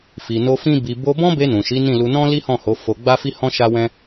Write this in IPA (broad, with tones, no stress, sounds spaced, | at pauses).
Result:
f i˨ n o˧ f ĩ˦ b i˧ b o˧ b ɔ̃˦ b e˧ n ũ˨ ʃ i˨˦ n ĩ˦˨ l u˧ n ɔ̃˦ l i˦ h ɔ̃˦˨ h o˨˦ f o˧ ɡ͡b a˦ f i˦ h ɔ̃˦ ʃ a˦ w ɛ̃˦